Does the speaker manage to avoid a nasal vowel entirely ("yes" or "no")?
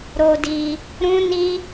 no